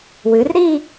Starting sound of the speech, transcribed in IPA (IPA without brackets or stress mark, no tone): w